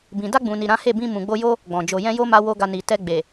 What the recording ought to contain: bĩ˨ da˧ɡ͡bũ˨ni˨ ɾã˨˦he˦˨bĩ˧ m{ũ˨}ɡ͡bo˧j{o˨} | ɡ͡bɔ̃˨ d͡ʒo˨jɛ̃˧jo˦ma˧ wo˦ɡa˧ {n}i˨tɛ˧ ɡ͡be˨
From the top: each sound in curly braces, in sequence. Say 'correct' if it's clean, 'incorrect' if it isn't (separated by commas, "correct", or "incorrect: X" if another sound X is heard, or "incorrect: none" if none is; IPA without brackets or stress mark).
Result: correct, incorrect: o˦, correct